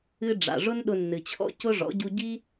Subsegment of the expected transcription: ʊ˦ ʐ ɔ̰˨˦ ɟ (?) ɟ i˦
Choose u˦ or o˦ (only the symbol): u˦